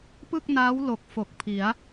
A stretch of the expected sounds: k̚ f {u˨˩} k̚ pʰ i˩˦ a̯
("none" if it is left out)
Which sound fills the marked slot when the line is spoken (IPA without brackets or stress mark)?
o˨˩